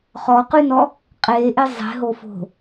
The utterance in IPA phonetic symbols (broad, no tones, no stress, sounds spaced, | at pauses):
χ ɔ q y n ɔ | qʼ e ʔ e zˤ e̤ ɦ o f o̤